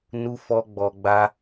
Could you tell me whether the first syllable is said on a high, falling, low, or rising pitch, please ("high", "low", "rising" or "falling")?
high